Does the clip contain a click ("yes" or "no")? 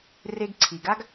yes